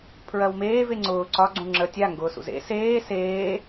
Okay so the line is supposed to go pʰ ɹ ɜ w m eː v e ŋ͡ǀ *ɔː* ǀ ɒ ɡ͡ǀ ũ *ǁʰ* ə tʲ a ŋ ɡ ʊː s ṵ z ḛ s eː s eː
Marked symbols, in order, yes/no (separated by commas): no, no